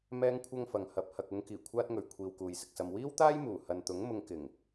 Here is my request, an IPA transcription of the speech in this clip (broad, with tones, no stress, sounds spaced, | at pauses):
m ɛː˥ ŋ kʷʰ ɐ˥ ŋ f ɐ˨ ŋ h ɐ˨ p̚ h ɐ˨ k̚ ʊ˨˧ ŋ k iː˨˩ kʷʰ aː˥ t̚ ŋ ɵ˨ ɥ kʷʰ iː˧ w k uː˨ j s ɪ˧ k̚ s ɐ˧ m w iː˥ w t̪ aː˥ j m uː˨˩ h ɐ˨ n t̪ ʊ˨˥ ŋ m ʊ˧ ŋ k ɪ˨˩ ŋ